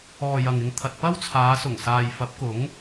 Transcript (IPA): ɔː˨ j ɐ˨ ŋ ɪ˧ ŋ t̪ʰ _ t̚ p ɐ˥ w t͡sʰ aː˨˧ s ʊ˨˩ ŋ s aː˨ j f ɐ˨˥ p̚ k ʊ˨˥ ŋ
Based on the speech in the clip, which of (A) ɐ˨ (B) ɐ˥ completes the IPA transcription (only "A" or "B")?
A